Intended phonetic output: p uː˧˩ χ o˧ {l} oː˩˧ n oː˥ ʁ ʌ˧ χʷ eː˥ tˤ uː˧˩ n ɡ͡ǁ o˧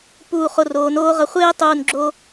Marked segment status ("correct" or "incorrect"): incorrect